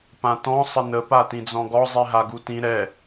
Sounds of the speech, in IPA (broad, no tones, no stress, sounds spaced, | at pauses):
p ã t ɔ̃ sˤ ə n ə p a t ĩ d͡z ɔ̃ ɡ ɔ zˤ i ɦ a ɡ u t ĩ ɾ ɛ